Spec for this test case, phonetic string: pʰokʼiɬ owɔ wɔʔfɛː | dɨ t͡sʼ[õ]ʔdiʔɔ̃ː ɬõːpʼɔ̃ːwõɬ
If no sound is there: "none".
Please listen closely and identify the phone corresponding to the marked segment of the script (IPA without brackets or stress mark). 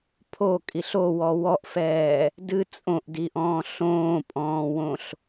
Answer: õ